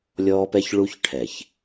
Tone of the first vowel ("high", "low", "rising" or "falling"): high